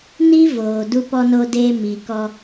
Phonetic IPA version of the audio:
n i˦ v oː˨ d u˧ p ɔ˧ n o˧ d eː˧ m i˨ k ɔ˧

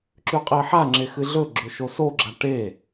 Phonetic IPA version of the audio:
ǁ ʉ qʼ e ħ a ŋ͡ǁ e x ɨ ɮ ɵ ɡ͡ǁ ɵ ʃ o s o ɡ͡ǁ a ʈ e

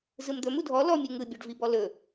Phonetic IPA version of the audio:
z ɯ m d̪ ɵ m u dʱ ɔ l ɔ mʲ u ŋ ɯ bʲ ɔ ɖ v i b ɔ l ɵ

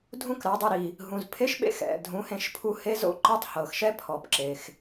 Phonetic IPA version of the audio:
dʱ ũ˦ k ɾ a˨˦ dˤ ɛ˧ ɾ i˨ | ɦ ũ˨ z pʰ e˦ ʃ ɓ ḛ˦ x ɛ̰˨ dʱ ũ˨˦ h ẽ˧ ʃ pʰ u˧ h e˦ z o̰˦ ǃ ɯ˦ tˤ h ɤ˨ x ʃ ɛ˦ pʰ ɔ˨ p ǁ e˨ x

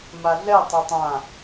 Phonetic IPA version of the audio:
m a ɮ ɛ tˤ a tˤ ã

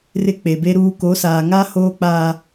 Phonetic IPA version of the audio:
r ɪ˦ k͡p e˨ b e˦ ɾ uː˦ k o˨˦ s aː˨ ŋ aː˦ h oː˦ k͡p aː˦

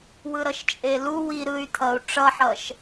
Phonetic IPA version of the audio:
w ɯ ɾ ʌ ʃ t͡ʃʼ e l u w i ɾ ɯ y̯ t̪ʰ ʌ u̯ ʈ͡ʂ ʌ ħ ʌ ʃ

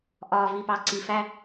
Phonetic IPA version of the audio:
ʔ ɒː˨ v i˨ p ɑ˨ ǀ i˨ f æ˦

